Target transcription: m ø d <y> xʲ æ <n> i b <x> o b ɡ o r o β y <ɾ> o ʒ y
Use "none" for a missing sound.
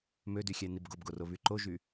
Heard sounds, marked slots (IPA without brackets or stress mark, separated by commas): y, n, ɡ, ǃ